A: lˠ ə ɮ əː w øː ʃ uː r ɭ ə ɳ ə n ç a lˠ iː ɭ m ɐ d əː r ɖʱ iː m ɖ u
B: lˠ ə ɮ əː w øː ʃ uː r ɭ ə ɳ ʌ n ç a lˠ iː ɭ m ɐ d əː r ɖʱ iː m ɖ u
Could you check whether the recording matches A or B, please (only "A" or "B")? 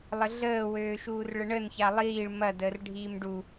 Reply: A